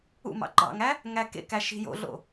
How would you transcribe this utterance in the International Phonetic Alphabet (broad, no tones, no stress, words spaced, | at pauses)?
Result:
ṵmɑ̰ ɡ͡ǃɑ̰ŋæ | ŋækḛkæ ʃi̤jo̰ɮo̰